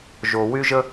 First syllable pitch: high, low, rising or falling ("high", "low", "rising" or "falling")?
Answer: low